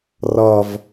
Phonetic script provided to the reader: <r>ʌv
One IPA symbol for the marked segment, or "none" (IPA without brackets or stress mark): r